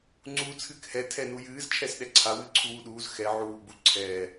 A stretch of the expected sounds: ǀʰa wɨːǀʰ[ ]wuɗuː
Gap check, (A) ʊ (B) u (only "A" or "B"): B